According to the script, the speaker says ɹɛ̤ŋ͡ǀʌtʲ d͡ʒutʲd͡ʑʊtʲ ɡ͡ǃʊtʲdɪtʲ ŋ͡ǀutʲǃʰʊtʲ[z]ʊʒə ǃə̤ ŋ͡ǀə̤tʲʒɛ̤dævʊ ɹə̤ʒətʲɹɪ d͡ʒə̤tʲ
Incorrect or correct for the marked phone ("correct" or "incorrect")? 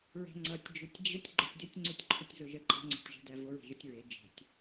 correct